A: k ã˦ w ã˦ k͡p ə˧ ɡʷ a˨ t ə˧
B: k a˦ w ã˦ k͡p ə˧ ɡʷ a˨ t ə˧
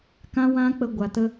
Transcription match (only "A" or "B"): A